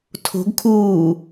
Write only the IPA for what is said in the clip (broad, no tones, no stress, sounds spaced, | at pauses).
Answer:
tʰ o̤ ɡ kʰ uː